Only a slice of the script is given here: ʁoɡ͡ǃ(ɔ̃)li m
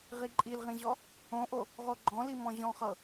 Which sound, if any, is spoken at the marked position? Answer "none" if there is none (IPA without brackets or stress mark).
ɔ̃